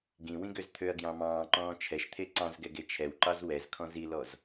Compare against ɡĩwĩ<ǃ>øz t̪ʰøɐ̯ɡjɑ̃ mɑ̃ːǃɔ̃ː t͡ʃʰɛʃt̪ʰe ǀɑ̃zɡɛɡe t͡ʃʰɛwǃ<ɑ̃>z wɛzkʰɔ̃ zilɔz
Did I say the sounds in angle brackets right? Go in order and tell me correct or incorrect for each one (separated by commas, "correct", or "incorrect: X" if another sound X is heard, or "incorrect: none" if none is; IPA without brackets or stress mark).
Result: incorrect: ɡ, incorrect: ɑ